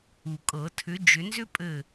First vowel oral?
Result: yes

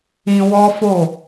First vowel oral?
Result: no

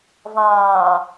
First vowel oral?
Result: no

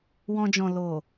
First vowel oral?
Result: no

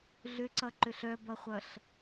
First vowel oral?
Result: yes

